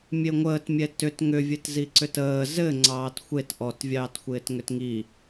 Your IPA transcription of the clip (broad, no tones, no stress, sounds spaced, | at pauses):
mʲ e ŋʷ əː t mʲ ɛ t ʏ t ŋ ʏ vʲ ɘ t z i ǀ ʏ t əː z ɘ ŋ͡ǀ ɑː t xʷ e t ʔ ɔ t vʲ ɑː t xʷ ɪː t ŋ ʏ t ŋ i